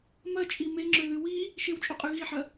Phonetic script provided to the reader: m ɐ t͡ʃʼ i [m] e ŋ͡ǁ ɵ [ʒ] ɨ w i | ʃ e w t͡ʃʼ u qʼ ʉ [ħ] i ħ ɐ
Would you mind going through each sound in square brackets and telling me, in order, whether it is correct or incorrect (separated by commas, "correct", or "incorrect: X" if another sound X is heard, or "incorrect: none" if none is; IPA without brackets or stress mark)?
correct, incorrect: ð, incorrect: ɣ